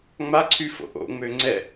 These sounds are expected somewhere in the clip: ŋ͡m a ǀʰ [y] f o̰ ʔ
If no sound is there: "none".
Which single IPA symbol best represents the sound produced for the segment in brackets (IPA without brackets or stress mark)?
y